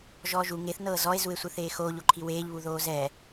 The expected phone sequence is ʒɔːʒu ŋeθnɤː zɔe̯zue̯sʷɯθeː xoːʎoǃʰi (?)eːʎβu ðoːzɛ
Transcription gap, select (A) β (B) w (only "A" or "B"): B